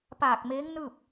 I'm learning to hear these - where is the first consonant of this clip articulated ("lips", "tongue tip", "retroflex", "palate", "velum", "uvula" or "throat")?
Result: lips